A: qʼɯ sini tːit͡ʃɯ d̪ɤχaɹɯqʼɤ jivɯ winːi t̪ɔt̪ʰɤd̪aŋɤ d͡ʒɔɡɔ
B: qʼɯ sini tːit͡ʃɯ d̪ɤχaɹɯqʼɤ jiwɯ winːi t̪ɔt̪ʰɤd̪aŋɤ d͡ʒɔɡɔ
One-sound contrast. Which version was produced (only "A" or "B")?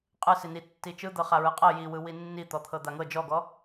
B